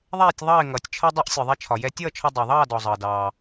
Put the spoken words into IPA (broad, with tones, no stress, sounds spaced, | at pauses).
ðˤ ɛː˥˨ tʲ ðˤ ɑ˥˨ ɪ̯ ŋ ʌː˩ tʲ t͡ʃʰ ʌ˧ dˤ ʌ˧ ʔ sʲ ɔ˩ ðˤ ɛ˧ t͡ʃʰ ɒ˩ j ɛ˧ tʲ ʌː˥˨ t͡ʃʰ ɒ˧ dˤ ɑ˩ ðˤ ɑː˥˨ d ɔ˩ zˤ ʌː˩ d ɑː˩